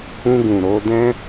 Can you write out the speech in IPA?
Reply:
ũ˧ ɡ ũ˨ ɾ o˧ d ɛ̃˦

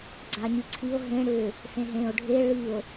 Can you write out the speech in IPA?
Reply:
ɡ͡ǀ a ɲ i ǀʰ i o̯ ɦ ẽ ɽ ʏ | s ẽ ɦ ẽ o̯ ɖʱ e ɭ i o̯

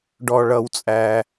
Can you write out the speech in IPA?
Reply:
ɖ ɔ˩ ɭ ʌ˩ w t͡sʼ æ˩

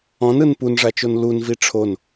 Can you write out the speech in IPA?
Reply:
ɔ̃ n ɯ n p u n ʐ a t͡ʃ o n l u n v i ʈ͡ʂʰ o n

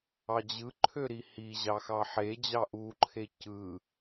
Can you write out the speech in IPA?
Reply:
ɑ d͡ʑ ɯ ǃʰ ø ɾ i h i ʑ ɑ x ɑ ħ e d͡ʑ ɑ ʔ u ǃʰ e c ɯ

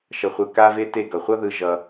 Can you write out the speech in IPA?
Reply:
ʃ ʌ˧ χʷ ɯ˧ k a˦ v e˦ t e˦˨ ɡ ʌ˨ χʷ ʌ˦ ð ɯ˧ ʒ ʌ˧

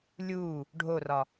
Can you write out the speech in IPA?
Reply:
lʲ uː | ɖʱ o r ɒ

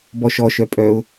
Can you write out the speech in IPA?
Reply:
b ɔ ʃ ɔ ʃ œ pʼ œ ʊ̯

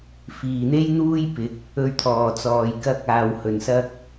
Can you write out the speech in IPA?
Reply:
f iː˨˩ n̪ e˥ j n̪ uː˥ j p ɪ˨˥ k̚ | ɵ˧ ɥ t̪ʰ ɔː˨˩ t͡s ɔː˨ j k ɐ˧ k̚ aː˨ w h ɵ˨ n s ɐ˥ k̚

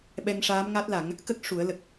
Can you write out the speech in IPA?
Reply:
ɓ ɛ˧ ŋ ʂ aː˧˥ m ŋ a˦˥ t̚ l a˨˩˦ ŋ | k ə˦˥ k̚ ʂ u˨˩˦ ə̯ l ə˨˩ k̚

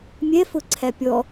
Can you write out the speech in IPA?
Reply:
mʲ ɛ f ʊ ǀʰ æ pʲ ɔ

